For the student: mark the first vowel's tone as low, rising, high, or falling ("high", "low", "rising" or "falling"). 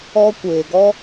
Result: high